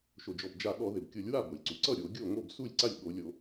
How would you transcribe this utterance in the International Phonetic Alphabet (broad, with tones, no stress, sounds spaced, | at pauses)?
ʃ o˩ d͡ʒ ɔ˩ b d͡ʒ a˧˩˧ ɠ ɔ˧˩˧ ð ɪ˩ b kʲ o˧˩˧ lʲ w a˥˩ b o˩ lʲ ǀ u˩ ǀ ʌ˥˩ ɾʲ o˧˩˧ ɡʲ o˥˩ ŋ o˥˩ b s u˥˩ lʲ ǀ a˥˩ lʲ ɠ o˧˩˧ lʲ o˧˩˧